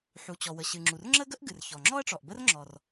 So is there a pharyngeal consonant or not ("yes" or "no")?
yes